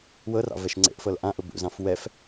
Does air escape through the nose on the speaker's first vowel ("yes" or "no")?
no